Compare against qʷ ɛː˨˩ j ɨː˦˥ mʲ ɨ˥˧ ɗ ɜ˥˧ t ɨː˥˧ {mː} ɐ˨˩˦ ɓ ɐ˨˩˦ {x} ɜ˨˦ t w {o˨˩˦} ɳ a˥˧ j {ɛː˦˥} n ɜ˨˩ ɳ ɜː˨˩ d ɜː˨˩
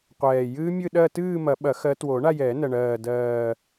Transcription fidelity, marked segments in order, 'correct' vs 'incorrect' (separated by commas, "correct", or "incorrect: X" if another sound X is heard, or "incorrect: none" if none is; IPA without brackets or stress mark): incorrect: m, correct, correct, incorrect: ɛː˨˩˦